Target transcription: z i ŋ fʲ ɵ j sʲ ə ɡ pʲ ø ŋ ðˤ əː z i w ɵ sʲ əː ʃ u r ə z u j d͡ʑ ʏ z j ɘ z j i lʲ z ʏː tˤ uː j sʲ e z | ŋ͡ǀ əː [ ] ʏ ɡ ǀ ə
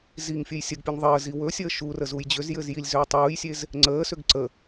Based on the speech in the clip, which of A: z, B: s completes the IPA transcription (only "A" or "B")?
B